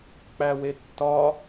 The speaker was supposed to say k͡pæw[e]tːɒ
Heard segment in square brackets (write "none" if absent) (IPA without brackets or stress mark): e